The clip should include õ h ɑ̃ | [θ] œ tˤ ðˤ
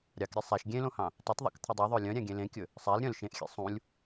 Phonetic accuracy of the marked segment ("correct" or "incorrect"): incorrect